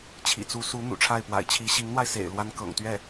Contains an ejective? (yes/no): no